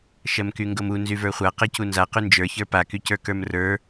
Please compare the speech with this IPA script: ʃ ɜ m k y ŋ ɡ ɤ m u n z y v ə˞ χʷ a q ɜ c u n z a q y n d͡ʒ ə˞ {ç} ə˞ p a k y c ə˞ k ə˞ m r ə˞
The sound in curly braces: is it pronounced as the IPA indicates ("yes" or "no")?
yes